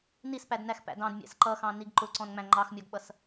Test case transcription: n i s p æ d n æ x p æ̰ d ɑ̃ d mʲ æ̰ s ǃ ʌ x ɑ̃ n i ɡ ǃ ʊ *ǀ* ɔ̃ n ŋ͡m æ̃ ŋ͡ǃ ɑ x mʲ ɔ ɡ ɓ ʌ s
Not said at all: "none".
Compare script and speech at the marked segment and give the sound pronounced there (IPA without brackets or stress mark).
ǀ